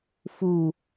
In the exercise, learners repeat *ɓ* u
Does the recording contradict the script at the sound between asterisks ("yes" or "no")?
yes